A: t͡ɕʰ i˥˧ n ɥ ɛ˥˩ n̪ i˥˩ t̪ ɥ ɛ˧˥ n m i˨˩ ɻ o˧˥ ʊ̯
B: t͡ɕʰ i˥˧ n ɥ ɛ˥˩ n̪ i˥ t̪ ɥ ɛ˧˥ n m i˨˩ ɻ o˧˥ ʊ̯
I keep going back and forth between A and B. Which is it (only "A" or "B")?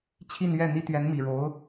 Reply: B